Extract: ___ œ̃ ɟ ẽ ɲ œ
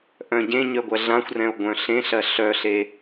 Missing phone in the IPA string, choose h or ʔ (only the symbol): ʔ